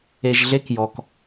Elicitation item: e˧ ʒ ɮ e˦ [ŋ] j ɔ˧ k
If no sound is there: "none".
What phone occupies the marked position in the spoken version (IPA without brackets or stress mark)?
k